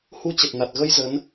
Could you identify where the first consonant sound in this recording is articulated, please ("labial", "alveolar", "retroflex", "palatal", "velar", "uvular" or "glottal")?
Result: glottal